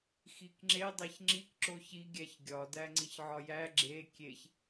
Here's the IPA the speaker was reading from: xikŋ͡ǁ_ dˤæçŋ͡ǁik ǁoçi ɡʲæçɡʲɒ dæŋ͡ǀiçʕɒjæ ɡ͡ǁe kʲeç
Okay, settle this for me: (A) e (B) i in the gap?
A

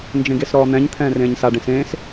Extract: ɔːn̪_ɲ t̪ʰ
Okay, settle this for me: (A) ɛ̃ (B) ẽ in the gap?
A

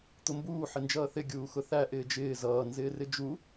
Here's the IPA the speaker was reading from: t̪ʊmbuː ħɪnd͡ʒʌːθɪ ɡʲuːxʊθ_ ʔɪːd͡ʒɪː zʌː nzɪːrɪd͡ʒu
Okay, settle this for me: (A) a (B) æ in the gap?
B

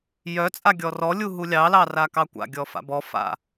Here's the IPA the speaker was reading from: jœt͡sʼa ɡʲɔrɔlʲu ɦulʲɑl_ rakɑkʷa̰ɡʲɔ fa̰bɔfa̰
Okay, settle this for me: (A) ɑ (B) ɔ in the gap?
A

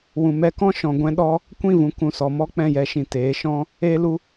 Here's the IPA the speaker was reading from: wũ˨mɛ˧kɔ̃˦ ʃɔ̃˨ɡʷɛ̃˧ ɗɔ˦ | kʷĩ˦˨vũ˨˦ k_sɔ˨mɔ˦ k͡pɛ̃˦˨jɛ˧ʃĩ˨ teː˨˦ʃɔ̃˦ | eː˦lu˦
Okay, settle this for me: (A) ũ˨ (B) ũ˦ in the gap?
A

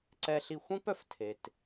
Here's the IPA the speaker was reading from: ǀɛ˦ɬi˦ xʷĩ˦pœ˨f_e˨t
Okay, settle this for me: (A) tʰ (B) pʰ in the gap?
A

